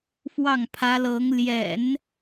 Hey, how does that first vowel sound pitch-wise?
falling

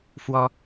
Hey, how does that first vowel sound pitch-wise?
high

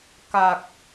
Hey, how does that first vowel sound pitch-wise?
low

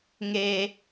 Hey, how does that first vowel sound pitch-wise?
low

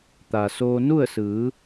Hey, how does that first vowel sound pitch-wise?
low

